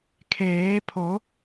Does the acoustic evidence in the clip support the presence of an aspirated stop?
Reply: yes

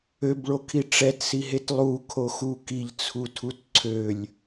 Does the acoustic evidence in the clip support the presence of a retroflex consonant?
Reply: yes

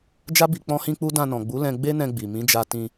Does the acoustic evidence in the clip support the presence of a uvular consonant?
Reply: no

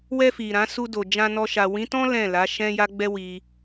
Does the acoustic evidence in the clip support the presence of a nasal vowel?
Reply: yes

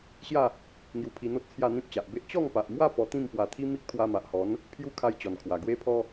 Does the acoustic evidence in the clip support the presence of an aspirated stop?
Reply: yes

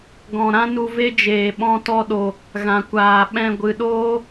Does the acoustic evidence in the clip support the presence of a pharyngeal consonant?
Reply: no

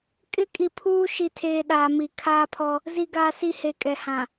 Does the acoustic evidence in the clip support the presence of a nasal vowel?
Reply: yes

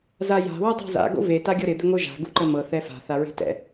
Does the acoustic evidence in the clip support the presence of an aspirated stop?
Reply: no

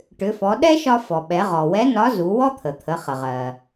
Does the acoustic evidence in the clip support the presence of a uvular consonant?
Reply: yes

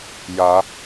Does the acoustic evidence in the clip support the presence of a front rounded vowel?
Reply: no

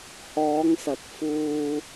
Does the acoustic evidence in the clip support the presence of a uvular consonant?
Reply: no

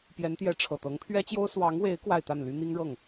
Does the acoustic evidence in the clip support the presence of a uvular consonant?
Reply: no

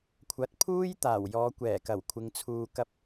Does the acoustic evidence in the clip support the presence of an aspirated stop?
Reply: yes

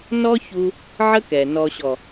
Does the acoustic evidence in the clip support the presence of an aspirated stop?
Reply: no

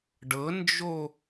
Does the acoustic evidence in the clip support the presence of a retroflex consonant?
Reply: yes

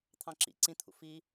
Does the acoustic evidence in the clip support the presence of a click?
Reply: yes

